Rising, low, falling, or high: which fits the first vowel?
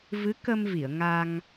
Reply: rising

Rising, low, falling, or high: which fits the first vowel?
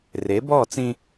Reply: rising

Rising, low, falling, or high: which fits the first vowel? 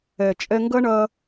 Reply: low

